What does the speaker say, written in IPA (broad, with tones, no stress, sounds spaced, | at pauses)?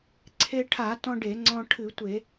ǀʰ e˧ ʈʰ a˧˩˧ t ɔ̃˧ ɖ e˧˩˧ ŋ͡ǀ ɔ̃˧ ʈʰ ɨ˧˩˧ tʷ e˧˩˧